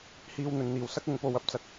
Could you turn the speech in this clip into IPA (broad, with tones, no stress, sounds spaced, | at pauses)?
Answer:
h iː˧ w n̪ ɵ˨ n n̪ iː˨˩ w s ɐ˥ k̚ ʊ˨˧ ŋ p o˨ w ɐ˨ p̚ t͡s ɐ˨ k̚